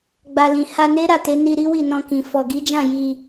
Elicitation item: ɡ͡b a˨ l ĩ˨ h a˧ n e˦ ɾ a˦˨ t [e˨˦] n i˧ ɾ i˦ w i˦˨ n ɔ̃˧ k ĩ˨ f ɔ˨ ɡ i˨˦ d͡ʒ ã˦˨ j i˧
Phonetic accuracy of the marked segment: correct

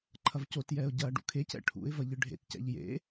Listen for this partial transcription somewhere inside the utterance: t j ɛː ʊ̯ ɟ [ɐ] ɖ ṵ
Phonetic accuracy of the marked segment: incorrect: ɐː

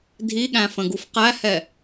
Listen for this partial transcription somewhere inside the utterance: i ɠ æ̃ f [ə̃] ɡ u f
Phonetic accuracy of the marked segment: correct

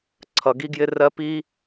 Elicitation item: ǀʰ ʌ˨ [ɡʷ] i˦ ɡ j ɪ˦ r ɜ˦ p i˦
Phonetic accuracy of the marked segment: incorrect: ɡ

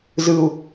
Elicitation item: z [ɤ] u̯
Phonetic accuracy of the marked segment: incorrect: ɯ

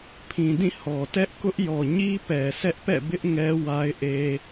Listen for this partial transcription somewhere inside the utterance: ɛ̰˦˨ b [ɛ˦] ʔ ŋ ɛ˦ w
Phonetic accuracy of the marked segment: incorrect: ɪ˦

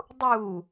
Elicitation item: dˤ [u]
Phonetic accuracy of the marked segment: correct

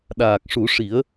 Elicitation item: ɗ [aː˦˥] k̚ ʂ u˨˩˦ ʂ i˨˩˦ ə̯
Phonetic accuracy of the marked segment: incorrect: aː˨˩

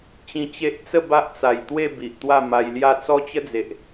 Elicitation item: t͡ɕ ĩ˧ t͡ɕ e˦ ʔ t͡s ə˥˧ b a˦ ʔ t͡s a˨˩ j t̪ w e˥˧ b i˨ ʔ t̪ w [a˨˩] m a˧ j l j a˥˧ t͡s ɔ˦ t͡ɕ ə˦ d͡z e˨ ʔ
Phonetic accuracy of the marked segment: incorrect: a˥˧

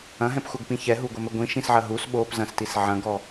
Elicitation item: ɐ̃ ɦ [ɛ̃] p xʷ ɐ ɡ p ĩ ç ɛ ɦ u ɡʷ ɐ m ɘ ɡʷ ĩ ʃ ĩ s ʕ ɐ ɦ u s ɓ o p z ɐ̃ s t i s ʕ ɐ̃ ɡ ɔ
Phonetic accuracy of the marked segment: correct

